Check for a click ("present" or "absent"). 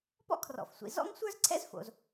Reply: present